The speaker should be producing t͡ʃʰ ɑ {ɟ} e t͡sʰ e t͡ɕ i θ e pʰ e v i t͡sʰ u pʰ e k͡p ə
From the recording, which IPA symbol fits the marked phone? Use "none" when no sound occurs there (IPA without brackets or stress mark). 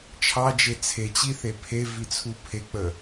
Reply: d͡ʒ